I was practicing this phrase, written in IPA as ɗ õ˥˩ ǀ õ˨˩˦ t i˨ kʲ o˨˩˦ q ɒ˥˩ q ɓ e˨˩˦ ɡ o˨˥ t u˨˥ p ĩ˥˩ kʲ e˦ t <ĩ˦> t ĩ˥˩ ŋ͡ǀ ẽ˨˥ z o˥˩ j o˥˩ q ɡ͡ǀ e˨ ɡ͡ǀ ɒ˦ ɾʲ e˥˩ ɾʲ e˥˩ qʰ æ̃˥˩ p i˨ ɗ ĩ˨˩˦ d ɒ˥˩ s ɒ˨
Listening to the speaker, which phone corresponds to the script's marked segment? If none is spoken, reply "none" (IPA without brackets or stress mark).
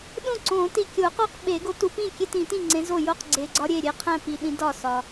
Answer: ĩ˨˩˦